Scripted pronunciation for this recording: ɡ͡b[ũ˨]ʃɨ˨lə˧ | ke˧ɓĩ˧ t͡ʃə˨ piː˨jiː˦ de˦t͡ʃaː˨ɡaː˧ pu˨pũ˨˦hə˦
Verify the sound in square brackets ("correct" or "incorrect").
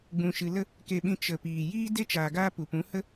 correct